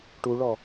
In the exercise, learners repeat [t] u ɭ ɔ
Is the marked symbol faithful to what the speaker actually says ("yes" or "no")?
no